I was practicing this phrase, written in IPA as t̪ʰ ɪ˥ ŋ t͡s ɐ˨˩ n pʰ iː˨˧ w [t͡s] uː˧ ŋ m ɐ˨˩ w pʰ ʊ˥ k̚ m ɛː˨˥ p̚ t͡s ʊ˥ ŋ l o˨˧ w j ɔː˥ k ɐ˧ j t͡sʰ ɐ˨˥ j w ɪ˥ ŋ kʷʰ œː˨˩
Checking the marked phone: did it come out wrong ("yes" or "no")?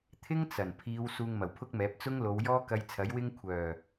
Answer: yes